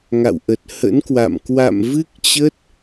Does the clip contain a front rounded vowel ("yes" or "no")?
no